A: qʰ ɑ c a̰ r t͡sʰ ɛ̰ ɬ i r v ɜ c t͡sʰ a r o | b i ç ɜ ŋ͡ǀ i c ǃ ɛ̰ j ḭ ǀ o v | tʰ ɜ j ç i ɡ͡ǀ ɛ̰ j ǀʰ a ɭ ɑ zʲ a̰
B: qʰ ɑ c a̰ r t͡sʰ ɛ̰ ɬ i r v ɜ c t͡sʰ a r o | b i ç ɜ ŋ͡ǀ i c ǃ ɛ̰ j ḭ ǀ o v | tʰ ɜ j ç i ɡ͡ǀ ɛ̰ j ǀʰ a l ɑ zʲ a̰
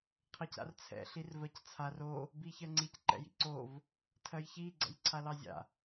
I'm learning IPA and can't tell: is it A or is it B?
B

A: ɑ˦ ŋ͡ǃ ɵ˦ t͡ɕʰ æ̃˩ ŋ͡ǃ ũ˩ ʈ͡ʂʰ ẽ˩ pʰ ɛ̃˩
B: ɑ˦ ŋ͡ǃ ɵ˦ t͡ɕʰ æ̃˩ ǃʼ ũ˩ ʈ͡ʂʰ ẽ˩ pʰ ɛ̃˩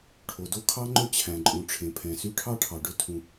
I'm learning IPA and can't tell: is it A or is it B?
B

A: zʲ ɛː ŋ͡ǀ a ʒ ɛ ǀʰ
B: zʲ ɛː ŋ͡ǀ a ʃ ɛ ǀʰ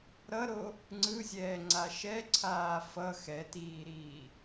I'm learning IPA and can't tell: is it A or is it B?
B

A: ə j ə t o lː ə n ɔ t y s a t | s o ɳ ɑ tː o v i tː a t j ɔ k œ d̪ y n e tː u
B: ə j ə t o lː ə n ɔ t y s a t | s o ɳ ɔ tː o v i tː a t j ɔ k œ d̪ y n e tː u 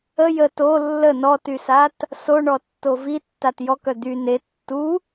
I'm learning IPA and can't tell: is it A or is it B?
B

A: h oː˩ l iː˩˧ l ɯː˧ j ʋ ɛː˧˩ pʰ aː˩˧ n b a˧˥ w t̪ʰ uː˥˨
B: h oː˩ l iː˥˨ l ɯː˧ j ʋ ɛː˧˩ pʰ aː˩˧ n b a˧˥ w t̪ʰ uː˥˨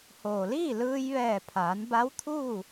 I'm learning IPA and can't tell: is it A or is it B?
B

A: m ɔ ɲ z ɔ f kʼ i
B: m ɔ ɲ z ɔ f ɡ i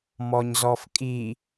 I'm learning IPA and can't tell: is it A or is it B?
A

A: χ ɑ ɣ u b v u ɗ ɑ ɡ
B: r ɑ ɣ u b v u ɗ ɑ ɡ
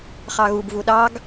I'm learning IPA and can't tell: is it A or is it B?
A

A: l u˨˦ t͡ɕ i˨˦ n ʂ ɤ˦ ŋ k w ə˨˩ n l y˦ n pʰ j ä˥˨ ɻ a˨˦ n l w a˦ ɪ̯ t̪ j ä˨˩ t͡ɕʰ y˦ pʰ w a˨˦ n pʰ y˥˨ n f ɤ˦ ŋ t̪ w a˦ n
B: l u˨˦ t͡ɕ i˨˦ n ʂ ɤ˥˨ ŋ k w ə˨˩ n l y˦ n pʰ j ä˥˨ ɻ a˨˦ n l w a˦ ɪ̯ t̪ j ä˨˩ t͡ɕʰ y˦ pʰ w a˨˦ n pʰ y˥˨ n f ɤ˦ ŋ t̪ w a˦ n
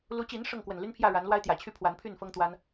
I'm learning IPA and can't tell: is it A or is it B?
B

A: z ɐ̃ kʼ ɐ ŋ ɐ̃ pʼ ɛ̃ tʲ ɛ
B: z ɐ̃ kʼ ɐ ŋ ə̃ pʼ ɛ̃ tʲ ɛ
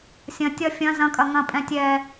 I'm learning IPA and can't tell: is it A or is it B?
A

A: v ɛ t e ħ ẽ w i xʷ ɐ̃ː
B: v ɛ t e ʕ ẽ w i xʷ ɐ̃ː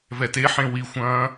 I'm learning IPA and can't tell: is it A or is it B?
A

